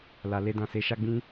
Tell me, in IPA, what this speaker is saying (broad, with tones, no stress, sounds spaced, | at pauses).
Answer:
l a˨ l e˧ d ã˨ s e˨˦ ʃ a˦ ɡ͡b ĩ˦